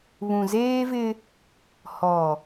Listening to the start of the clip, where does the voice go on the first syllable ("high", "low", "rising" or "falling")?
low